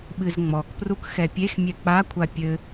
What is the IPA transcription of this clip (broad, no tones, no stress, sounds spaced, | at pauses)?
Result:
ɓ ɨ z ŋ͡m ɔ k p r u k x ɛ pʲ e x mʲ ɛ k͡p a kʷʰ a pʲ ɘ